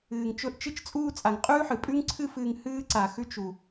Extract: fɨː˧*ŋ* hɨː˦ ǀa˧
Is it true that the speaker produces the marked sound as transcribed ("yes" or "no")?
yes